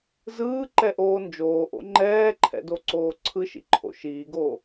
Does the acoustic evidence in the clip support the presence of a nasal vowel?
no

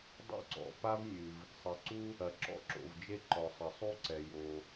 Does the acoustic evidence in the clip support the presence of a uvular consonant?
no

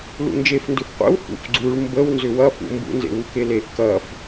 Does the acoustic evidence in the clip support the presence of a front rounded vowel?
yes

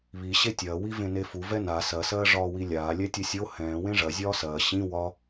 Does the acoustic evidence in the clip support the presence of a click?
no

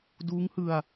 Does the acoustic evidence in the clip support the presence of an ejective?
no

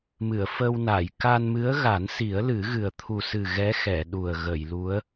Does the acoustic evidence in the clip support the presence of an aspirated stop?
yes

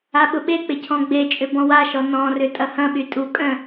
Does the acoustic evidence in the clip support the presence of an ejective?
yes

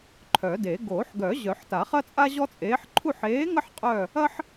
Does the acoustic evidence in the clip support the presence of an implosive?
no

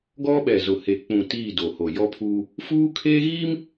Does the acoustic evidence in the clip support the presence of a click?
no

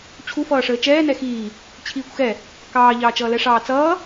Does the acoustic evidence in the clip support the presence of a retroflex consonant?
yes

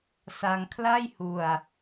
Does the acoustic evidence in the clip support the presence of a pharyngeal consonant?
no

